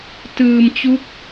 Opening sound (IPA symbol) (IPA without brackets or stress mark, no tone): t